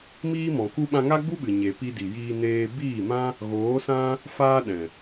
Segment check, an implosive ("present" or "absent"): present